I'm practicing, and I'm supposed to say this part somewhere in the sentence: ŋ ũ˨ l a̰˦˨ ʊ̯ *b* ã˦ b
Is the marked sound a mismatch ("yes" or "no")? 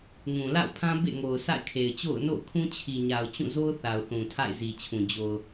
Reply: yes